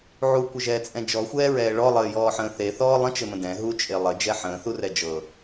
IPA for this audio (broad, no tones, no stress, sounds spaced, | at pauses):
ʕ u kʷ ɘ ʒ ɛː t͡sʼ ɛ̃ d͡ʒ ɔ xʷ ɛː ɹ ɛː ɭ ɔ lˠ ɘː j ɔː ħ ə̃ː θ e θ ɔː lˠ ə̃ t͡ʃ ɘ m ə̃ d ɛ̃ ɦ u t͡ʃʼ e lˠ ɘ d͡ʒ ɛ ħ ə̃ː θ u r ɛ d͡ʒ ɤ